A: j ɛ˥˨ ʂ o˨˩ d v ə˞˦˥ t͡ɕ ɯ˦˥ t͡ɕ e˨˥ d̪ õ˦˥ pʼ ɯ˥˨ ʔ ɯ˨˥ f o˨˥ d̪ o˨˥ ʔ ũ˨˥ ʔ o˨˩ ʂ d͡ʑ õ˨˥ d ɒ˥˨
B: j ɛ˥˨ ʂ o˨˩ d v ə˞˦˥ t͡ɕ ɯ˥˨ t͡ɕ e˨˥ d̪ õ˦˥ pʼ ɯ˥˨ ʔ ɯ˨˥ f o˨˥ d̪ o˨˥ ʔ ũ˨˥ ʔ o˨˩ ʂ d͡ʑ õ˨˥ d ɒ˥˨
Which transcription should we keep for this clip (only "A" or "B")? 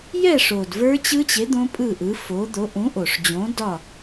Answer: A